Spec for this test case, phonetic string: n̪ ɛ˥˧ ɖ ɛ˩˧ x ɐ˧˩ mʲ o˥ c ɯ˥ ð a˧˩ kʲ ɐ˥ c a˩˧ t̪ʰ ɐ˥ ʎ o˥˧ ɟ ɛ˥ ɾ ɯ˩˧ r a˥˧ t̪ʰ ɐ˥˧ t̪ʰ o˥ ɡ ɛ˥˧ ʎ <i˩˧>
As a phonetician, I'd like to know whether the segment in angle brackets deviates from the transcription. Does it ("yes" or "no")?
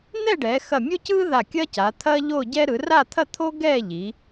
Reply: no